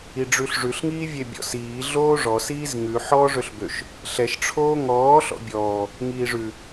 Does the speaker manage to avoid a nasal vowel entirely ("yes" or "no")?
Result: yes